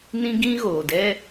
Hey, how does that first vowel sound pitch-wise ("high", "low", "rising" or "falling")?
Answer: high